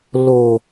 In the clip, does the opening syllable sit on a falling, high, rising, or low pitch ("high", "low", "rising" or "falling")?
low